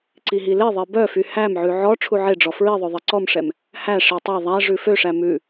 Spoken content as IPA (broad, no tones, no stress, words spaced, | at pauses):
ǀiɦileðˤe bœfy hæmʕʉ ʕɔ ʈ͡ʂʰuʕeɖ͡ʐɔ fɹiðˤø ðˤeǀɔmʂɛm | hæʂi tˤɛ ðˤæ ʐʉføʂæ mʉ